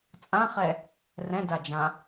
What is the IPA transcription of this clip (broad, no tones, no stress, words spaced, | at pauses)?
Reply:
t͡sʼãχɛ | rɛ̃dad͡ʒã